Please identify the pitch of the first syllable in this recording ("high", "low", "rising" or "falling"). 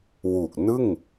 low